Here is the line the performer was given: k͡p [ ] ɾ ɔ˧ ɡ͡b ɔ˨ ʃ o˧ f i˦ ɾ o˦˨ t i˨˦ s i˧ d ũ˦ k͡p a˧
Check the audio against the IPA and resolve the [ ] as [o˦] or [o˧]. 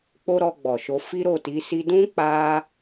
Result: o˦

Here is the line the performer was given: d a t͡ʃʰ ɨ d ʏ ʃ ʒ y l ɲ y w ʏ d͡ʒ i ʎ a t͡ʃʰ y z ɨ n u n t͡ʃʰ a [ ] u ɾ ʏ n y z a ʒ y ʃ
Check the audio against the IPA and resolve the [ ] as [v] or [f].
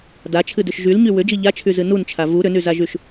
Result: v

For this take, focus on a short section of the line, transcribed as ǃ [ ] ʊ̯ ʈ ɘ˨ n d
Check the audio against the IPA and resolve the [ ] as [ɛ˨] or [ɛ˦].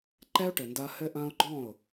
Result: ɛ˦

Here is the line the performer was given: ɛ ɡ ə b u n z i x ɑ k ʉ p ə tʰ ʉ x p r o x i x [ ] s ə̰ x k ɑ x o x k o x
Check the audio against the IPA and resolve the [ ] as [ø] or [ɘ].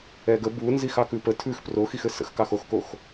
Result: ɘ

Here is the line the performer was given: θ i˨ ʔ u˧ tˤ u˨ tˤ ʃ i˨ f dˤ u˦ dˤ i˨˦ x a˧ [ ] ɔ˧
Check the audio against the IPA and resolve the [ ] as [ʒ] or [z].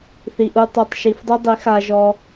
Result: ʒ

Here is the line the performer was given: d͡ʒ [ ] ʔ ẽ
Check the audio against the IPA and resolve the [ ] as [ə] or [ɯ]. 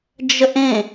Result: ə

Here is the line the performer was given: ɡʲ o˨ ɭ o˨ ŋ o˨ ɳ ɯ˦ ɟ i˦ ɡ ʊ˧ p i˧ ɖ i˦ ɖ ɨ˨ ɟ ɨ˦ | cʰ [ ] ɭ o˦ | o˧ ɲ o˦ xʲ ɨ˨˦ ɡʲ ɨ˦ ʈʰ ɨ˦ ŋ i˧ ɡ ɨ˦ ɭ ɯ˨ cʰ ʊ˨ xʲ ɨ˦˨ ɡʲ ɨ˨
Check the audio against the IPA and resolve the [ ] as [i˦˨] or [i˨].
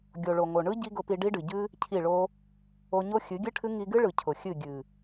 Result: i˦˨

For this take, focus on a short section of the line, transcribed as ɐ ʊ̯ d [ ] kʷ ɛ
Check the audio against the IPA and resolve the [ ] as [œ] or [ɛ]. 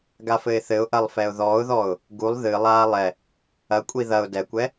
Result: ɛ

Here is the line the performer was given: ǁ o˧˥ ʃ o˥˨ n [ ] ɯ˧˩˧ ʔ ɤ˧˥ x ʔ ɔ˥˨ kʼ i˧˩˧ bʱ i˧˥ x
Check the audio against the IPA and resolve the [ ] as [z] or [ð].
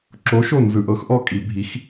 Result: z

